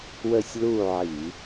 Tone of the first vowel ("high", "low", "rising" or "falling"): falling